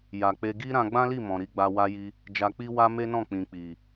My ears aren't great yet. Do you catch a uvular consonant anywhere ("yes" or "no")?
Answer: no